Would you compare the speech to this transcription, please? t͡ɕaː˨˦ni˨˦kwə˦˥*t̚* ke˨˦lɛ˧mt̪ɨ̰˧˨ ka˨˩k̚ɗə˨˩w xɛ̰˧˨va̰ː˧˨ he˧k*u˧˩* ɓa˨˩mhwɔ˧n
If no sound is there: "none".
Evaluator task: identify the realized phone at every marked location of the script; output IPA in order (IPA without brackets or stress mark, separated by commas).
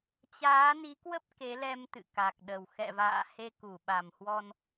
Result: p̚, u˧˩